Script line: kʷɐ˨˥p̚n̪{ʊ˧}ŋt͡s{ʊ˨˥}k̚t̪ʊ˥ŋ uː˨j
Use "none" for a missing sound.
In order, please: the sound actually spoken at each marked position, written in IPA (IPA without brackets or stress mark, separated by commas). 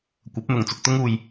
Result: ʊ˨, ʊ˧